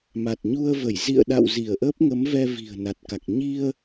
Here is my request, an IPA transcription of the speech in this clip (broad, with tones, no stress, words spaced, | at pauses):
ma˨˩t̚ɲu˧ə̯və˧˩j zḭ˧˨ə̯ɗa̰˧˨w zi˧˩ə̯ʔə˦˥p̚ŋə˨˦mvɛ˧ vi̤˨˩ə̯na˨˩t̚ka˨˩k̚ ɲi˧ə̯